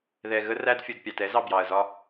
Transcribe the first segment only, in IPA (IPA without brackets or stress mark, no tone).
ð